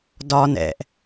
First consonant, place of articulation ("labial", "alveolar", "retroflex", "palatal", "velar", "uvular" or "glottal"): alveolar